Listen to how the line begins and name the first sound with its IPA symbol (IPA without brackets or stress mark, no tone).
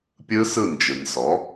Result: pʲ